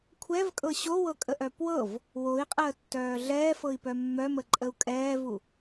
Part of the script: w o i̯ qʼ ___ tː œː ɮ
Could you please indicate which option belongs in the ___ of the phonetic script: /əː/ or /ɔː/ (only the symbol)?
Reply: əː